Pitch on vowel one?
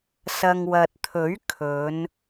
low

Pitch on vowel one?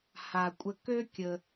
low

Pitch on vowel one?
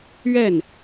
falling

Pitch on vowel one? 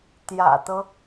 low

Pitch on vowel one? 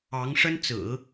rising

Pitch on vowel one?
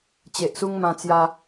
low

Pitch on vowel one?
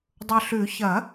low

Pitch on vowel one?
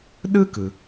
high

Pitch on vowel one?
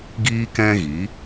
high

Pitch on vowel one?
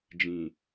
low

